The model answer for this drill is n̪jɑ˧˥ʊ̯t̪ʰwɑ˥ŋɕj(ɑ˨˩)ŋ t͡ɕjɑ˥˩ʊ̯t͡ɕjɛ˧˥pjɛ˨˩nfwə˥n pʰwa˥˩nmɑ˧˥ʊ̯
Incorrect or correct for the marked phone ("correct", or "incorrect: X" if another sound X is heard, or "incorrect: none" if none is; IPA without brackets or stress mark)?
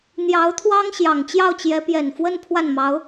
correct